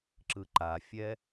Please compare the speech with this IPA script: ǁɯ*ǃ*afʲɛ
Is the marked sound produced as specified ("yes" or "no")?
yes